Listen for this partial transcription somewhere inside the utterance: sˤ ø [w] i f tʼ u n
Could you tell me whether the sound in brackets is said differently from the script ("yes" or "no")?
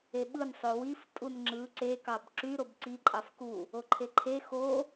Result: no